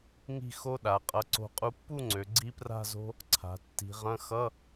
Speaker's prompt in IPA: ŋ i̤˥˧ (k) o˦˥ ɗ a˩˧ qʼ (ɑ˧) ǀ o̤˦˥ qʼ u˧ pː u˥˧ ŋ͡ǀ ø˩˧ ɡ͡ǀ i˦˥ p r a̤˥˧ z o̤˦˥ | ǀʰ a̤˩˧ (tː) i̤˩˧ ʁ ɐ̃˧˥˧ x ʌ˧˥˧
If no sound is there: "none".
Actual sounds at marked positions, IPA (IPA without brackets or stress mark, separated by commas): x, ʌ˧, tː